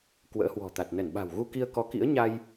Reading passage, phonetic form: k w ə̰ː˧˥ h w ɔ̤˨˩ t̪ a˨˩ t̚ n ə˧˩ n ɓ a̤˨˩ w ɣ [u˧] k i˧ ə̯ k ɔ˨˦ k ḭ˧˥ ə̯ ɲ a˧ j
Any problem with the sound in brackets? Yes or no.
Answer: no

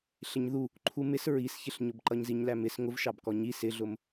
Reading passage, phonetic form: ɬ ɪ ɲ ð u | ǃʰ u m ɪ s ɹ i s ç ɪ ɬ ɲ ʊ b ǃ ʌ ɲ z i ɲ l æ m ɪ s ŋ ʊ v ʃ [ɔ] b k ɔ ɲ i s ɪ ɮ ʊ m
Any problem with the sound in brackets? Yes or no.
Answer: yes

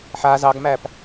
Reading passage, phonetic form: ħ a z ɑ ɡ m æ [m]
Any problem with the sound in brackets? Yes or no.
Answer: yes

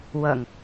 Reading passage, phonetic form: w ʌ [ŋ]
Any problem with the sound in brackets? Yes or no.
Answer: no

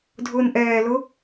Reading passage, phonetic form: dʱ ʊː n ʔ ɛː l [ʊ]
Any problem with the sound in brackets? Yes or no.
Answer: no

